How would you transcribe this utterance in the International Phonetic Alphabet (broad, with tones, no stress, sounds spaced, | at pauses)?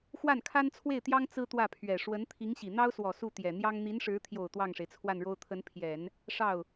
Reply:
x w a˥˩ n kʰ a˥ n t͡sʰ w e˥˩ ɪ̯ t̪ j ɑ˥ ŋ t͡s ɹ̩˥ t̪ w ä˥˩ pʰ ɥ ɛ˨˩ ʂ w ə˧˥ n t̪ʰ i˧˥ ŋ ɕ i˨˩ n̪ ɑ˥ ʊ̯ s w ɔ˨˩ s u˥˩ t̪ j ɛ˨˩ n̪ j ɑ˥ ŋ n̪ i˧˥ n ʂ ɻ̩˧˥ t̪ʰ j o˨˩ ʊ̯ t̪ w ɑ˥˩ ŋ ʂ e˩ ɪ̯ t͡sʰ w a˥˩ n ɻ o˥ ʊ̯ t̪ʰ ə˧˥ n pʰ j ɛ˨˩˦ n | ʂ ɑ˥˩ ʊ̯